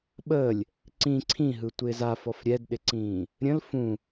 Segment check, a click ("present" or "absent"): present